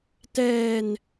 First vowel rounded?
no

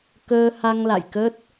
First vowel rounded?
no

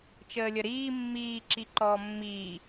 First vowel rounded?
no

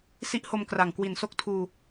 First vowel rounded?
no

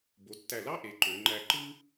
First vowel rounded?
yes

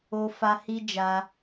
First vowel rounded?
yes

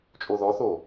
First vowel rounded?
yes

